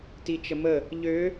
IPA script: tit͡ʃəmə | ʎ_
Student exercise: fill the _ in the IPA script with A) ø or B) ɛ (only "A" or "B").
A